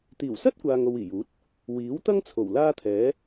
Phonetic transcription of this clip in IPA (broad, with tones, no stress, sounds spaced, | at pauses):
t̪ iː˨˩ w s ɐ˥ t̚ kʷ aː˨ ŋ o˧ w iː˨˩ j uː˨˥ t̚ | w iː˨˥ w t̪ ɐ˥ ŋ t͡sʰ o˨˩ w l aː˥ t̪ʰ ɛː˨˥